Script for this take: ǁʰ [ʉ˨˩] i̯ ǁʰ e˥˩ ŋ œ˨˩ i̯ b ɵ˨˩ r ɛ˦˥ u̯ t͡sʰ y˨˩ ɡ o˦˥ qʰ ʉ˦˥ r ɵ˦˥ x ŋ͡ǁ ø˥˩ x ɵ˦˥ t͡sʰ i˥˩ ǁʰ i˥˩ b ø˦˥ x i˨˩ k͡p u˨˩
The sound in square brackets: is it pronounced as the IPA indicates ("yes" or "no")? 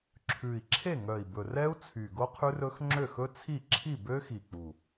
yes